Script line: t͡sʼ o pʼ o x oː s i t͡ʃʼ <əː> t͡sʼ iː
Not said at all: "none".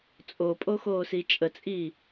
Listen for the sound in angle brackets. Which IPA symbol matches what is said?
ə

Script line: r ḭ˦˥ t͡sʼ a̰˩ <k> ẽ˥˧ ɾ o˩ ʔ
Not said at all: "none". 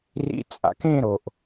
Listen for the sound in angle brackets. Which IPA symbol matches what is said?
k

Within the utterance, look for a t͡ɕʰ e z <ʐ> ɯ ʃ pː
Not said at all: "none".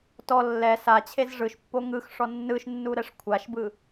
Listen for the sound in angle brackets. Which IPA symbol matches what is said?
ʐ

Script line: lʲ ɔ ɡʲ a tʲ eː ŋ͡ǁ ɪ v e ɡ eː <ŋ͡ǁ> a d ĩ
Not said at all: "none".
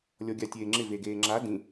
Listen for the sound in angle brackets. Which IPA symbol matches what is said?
ŋ͡ǁ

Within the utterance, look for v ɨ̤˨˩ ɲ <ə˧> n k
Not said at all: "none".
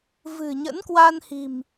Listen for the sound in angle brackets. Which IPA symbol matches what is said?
ə̰˧˥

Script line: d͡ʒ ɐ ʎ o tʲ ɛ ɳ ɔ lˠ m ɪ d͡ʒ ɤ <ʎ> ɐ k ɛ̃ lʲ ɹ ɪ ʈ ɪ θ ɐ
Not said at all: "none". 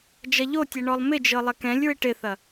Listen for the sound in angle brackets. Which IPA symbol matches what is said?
lˠ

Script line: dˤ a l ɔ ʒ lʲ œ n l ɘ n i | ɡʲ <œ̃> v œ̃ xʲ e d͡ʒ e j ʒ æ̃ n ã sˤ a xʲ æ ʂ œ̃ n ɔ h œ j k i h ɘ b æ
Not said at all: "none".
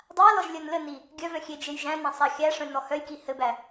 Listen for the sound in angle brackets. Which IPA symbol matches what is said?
œ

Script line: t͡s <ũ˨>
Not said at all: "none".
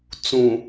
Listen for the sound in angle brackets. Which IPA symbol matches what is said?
ũ˨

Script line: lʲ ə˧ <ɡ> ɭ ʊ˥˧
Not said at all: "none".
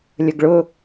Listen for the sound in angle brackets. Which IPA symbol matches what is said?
ɡ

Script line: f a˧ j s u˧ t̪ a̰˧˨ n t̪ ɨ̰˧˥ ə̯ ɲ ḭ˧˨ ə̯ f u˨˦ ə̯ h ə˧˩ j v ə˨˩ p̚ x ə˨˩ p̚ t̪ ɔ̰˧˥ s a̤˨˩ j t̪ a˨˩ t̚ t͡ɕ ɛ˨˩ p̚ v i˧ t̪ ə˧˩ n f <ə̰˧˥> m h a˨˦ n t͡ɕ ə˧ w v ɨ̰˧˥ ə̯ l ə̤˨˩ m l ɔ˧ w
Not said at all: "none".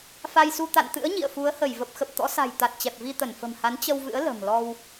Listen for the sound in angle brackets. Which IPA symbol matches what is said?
ə̤˨˩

